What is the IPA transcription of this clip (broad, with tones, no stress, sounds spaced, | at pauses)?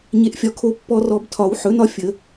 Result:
ɲ e˨ ʔ fʲ ɒ˨ kʰ o˨˩˦ pː ɔ˨ r ɔ˨ b tʰ ɒ˨˩˦ w ħ ɵ˩˥ n ɒ˦ fʲ ə˨˩˦